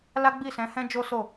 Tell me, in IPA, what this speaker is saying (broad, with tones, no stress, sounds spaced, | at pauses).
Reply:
l a˦ ɡ͡b i˦˨ s ɛ̃˨˦ h ɛ̃˦ d͡ʒ o˦ s o˦˨